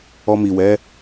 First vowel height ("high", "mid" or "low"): mid